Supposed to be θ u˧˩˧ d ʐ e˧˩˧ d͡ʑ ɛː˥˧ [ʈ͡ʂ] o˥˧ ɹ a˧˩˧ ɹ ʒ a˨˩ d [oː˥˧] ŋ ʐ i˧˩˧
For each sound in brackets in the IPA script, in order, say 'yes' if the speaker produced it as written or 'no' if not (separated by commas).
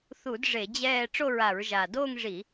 yes, yes